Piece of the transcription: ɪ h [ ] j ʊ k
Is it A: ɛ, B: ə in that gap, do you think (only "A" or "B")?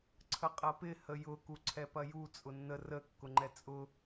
B